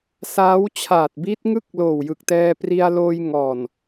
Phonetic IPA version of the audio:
saː˦˥w t͡ɕʰaː˨˩t̚bi˦˥t̚ŋɯ˥˩k̚loː˨˩w jɯ˨˩k̚tɛː˧pri˧a̯loː˧j ŋɔː˨˩n

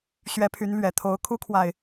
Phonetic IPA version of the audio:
ɕɥɛ˨˦pʰy˨˦nlɥɛ˨˩t̪ʰo˨˦ʊ̯ kʰu˦kʰwa˨ɪ̯

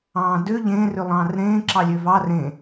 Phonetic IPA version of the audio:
ɑ̃ːdø ʎẽːrø lˠɑ̃ːrɾẽː ǁɑlʲøvɑ rẽ

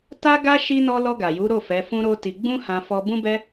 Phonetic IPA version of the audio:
ta˦ɡa˦ ʃi˦nɔ˦ lɔ˧ ɡa˨ju˨˦ɾo˦˨ fɛ˨˦ fũ˦ɾo˦ti˧ ɡ͡bũ˦hã˧fɔ˧ bũ˦bɛ˦

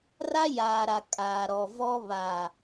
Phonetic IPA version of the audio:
ra˦jaː˨ɾa˨ kʼaː˨ɾɔ˨vɔ˦ βa˨

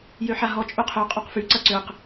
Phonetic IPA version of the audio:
jøħaɦɔ t͡ʃʼøqʰø qʼoqfy ǀɐǀøq

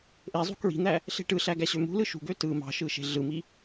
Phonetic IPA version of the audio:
ʔezˤṳ kɹi̤n̪æ | ɬe̤ʈɯɬæ ɡæɕømṳlɯ ʃṳɡø tɯ mɑ̤ʃɯ ʃe̤ɮɯmi

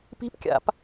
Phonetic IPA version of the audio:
pi̤pkʲa̰p

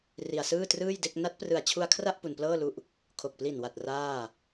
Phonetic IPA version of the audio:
ri˧a̯sɯː˥˩trɯː˥˩jde˥˩k̚ na˦˥t̚ prɯ˨˩a̯t͡ɕʰu˧a̯kʰra˥˩ʔ pu˧nplɤː˥˩lu˦˥ʔ | kʰo˨˩k̚pli˨˩nwa˨˩t̚ raː˥˩

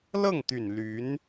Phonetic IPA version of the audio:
lɤ˥˩ŋt̪y˨˩n ly˧˥n

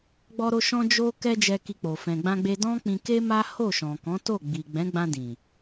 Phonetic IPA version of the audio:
ɡ͡bɔ˧ɾo˧ ʃɔ̃˦d͡ʒo˦ kɛ˦d͡ʒɛ˧ki˧k͡po˨ fɛ̃˨ɡ͡bã˧ɡ͡be˧ dɔ̃˦k͡pĩ˧ ke˦ma˦ho˦˨ ʃɔ̃˨kɔ̃˨˦to˦˨ ɡ͡bi˨ɡ͡bɛ̃˨˦ɡ͡bã˧ dĩ˨

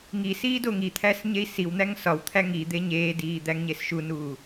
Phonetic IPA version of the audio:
ŋisiː doŋit̪ʰæs ɲei̯siwn̪æŋ sɒwt̪ʰæ ŋi d̪eɲeːdiː d̪æŋɲesʃunuː

